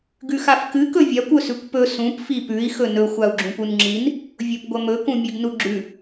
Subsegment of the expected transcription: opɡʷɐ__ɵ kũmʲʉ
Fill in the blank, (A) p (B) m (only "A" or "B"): B